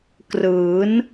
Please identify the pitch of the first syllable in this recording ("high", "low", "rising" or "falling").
rising